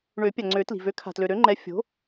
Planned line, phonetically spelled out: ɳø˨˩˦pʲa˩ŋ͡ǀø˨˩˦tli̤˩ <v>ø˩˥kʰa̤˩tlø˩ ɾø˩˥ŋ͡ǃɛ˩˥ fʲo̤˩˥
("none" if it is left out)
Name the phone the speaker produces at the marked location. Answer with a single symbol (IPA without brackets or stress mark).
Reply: v